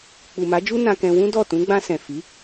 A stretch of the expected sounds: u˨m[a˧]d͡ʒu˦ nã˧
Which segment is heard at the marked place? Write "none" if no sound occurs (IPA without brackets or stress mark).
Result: a˨˦